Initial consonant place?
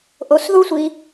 glottal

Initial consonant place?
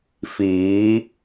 labial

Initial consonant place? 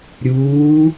alveolar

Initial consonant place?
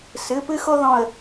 alveolar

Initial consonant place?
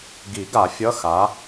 velar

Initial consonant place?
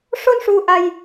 retroflex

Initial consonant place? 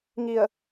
velar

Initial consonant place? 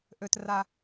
glottal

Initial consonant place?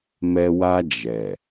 labial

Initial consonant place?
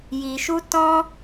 palatal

